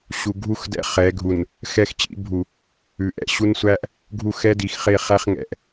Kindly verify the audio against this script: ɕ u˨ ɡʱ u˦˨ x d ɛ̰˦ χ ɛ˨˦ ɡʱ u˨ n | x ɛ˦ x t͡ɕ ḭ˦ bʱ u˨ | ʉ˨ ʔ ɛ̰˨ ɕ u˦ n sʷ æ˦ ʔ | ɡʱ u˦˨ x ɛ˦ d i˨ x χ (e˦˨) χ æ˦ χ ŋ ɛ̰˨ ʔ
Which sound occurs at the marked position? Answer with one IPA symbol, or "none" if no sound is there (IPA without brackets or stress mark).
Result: e˦˨